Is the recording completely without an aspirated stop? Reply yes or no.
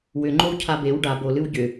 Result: no